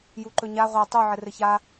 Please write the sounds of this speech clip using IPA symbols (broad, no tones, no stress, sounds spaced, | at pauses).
j u ǃ ɵ ɲ a ʁʷ a tˤ u ʕ ɘ r ɘ ç a